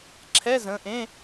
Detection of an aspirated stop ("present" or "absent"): present